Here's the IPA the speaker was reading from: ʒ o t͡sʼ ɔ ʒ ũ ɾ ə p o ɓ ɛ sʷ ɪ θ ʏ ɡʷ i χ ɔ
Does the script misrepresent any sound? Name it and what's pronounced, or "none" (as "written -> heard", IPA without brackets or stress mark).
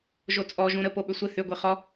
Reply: ɛ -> ʏ